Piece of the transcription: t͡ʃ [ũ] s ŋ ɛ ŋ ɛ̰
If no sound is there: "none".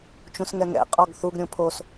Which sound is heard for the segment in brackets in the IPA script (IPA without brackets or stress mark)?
ũ